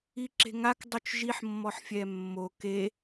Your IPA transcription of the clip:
i ǁ e̤ ŋ a k dˤ u t͡ʃ ʒ i ħ mː ɔ ħ fʲ ɛ mː o k e

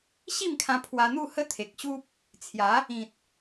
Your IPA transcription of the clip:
ɕ i˥˧ m kʰ ã˧ pʰ w a˧ n̪ u˥˧ h ə˦ t̪ʰ e˨ k̚ ɕ u˦ p̚ | t͡sʰ j a˨˦ | ĩ˨ t̚

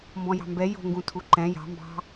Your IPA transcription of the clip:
m b ɔ̃ j ɑ̤ m b ɛ j o̤ ŋ ɡ ũ tʰ u ǃ ɛ̃ j ɑ̤ m b ɑ̤

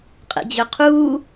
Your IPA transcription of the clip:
qʼ ɛ̰ d͡ʑ œ qʰ uː

